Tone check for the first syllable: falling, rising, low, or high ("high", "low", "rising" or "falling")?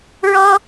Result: high